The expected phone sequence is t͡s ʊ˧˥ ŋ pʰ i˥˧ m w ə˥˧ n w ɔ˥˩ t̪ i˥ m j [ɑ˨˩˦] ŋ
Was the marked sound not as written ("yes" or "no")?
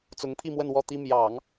no